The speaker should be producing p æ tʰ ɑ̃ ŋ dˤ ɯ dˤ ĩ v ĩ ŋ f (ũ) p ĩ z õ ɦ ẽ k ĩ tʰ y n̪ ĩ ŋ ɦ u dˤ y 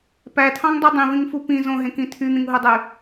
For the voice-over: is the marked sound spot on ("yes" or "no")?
no